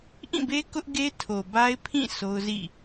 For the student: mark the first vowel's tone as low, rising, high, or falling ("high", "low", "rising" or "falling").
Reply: falling